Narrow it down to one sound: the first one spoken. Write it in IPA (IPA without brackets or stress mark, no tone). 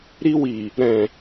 ɾ